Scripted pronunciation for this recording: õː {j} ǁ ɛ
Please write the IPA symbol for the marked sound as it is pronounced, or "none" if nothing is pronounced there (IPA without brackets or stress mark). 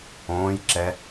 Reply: j